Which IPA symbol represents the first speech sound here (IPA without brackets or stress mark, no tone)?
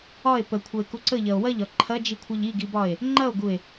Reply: ɒ